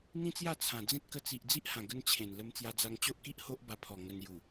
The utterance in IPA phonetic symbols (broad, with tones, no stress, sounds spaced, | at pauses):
n̪ ĩ˦ t͡s j a˥˧ t͡sʰ ã˨˩ d͡z ẽ˦ t̚ k ə˧ t͡s i˨ ʔ d͡z i˦ ʔ h ã˨˩ ɡ ə˦ n t͡ɕʰ ẽ˨˩ n l ə˧ m t͡s j a˧ d͡z a˧ ŋ t͡ɕ o˦ ʔ k i˦ ʔ h o˦ ʔ b a˧ pʰ ɔ˨˩ ŋ ə˧ n j u˨˩